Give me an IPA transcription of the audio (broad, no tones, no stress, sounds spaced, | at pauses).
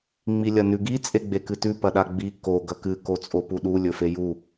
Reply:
ŋ͡m i lʲ ɐ n ʉ ɡ i t͡sʼ e ɡ͡b e k ɨ t ʉ p ɐ ɗ a ɡ͡b i k o ɡ ɐ k ɨ k o t͡sʼ o p u ɗ u lʲ ɵ f e j u